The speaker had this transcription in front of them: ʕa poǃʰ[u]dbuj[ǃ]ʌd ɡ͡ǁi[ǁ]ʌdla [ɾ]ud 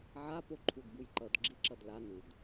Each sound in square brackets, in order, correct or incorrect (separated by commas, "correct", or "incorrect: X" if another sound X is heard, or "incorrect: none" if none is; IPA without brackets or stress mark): correct, correct, correct, incorrect: n